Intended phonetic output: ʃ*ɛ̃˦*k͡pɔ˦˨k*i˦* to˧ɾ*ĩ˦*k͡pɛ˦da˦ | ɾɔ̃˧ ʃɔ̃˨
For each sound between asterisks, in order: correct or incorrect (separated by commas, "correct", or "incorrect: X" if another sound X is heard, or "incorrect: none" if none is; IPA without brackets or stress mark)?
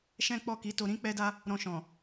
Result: correct, incorrect: i˨˦, correct